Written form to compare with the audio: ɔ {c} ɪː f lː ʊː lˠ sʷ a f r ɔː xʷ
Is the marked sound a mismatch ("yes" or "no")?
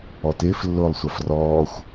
yes